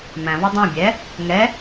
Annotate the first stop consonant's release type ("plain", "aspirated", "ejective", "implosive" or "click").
plain